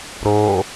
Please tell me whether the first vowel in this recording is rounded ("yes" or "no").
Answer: yes